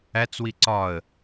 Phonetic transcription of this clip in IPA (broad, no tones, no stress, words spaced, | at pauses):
æt͡swi ǀɒə̯